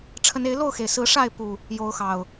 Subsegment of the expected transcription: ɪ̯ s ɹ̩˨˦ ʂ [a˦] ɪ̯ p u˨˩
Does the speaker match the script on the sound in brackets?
no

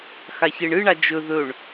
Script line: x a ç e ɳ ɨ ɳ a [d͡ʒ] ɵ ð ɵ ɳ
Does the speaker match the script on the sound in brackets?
yes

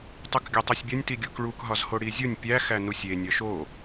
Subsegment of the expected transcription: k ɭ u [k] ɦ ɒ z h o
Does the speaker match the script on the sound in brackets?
yes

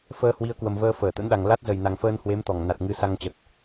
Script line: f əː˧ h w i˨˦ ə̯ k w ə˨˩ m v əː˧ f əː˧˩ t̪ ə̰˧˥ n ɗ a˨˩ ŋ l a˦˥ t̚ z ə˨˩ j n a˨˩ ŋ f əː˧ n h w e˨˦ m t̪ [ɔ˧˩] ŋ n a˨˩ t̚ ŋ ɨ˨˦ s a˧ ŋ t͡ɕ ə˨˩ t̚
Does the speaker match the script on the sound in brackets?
yes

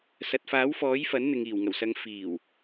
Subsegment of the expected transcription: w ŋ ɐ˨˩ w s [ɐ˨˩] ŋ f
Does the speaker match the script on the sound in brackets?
no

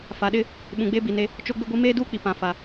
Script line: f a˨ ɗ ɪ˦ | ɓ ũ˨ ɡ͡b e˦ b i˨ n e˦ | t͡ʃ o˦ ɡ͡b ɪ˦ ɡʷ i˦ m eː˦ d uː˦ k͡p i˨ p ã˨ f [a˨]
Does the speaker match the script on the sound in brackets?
yes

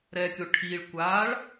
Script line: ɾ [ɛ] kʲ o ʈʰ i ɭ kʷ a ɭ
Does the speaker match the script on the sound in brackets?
yes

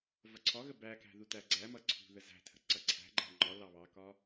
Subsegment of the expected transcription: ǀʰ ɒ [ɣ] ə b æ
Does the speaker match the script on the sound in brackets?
yes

